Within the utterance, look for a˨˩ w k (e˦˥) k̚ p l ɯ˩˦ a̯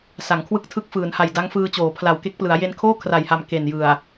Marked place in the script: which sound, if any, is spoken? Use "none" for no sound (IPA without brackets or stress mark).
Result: e˦˥